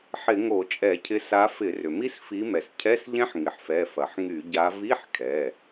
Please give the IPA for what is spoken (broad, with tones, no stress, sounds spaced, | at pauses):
ħ ɪ˧˩˧ ŋ o˧˩˧ t͡ʃʼ ɛ˧˩˧ cʰ ɪ˨˦ s a˨˦ f ɪ˧˩˧ r ʏ˩ m i˦˥ s f i˨˦ m ɛ˩ s cʰ ɛ˧˥˧ s ʎ ɛ̃˦˥ ħ ŋ ɪ˩ ħ f ɛ˩˧˩ f ɐ˩ ħ ŋ y˧˩˧ ɟ a˨˦ v i˧˥˧ ħ kʰ ɛ˩˧˩